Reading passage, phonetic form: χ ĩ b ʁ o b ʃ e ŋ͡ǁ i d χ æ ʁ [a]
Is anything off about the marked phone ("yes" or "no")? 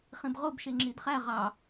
yes